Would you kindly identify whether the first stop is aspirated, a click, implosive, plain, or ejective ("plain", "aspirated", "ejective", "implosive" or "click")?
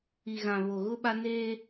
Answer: implosive